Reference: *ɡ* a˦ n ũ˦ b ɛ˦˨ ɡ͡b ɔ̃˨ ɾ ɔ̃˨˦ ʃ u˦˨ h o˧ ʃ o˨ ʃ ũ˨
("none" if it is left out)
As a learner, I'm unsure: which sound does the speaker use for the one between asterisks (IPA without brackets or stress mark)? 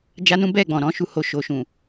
d͡ʒ